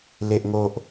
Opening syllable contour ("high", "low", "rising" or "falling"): high